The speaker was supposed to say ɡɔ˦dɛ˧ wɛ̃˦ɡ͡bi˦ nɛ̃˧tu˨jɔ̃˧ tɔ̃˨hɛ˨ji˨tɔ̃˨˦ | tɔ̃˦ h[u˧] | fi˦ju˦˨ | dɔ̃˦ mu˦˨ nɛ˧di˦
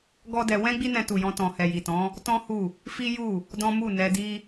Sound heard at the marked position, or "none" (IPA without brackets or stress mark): u˦˨